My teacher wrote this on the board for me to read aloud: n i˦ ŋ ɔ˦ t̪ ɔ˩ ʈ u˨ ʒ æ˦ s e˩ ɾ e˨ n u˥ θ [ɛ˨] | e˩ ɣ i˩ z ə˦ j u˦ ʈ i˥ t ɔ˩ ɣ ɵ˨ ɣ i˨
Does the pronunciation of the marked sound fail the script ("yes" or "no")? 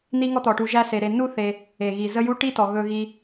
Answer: yes